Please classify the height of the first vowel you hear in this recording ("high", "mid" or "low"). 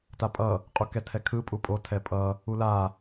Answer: low